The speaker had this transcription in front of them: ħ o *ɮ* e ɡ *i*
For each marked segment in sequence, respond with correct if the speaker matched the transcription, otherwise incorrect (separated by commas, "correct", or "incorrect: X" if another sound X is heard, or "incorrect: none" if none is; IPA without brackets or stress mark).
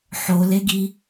incorrect: l, correct